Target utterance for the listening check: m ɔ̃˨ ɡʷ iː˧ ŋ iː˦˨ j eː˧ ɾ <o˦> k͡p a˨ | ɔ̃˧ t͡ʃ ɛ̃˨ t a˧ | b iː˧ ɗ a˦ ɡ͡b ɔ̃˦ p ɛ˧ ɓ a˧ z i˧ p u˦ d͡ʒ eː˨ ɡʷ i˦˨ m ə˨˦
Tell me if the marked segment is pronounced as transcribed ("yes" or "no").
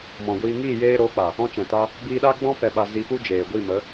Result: no